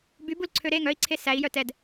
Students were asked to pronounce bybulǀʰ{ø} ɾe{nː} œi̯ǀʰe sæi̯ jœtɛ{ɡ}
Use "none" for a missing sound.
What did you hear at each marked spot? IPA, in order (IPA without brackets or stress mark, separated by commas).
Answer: ø, ŋ, d